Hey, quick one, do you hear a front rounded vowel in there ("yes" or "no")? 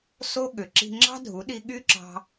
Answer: yes